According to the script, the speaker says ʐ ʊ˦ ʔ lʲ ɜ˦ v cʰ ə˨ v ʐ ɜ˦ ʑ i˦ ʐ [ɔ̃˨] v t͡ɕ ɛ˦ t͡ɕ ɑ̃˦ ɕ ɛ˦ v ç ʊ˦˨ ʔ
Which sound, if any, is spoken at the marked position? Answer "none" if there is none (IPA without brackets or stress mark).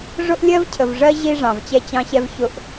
ɑ̃˨